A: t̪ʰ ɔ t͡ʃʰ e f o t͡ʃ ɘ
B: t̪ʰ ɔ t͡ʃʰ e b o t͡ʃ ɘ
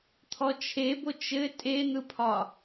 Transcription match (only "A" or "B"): B